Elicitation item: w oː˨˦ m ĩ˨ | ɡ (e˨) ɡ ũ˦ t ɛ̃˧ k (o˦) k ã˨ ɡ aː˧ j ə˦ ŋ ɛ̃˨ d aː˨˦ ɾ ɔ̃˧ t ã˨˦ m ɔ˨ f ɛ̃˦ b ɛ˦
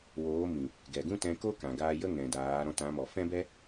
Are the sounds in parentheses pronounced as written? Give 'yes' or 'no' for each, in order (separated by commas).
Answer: no, yes